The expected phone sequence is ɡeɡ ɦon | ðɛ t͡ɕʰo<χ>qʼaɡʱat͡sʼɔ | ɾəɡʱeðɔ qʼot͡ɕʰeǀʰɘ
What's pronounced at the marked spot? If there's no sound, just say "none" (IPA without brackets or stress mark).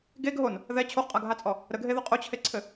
χ